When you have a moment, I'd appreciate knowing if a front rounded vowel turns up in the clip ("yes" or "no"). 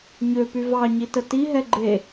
yes